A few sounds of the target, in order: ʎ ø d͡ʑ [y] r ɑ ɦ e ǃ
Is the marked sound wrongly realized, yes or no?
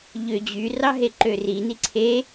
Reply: no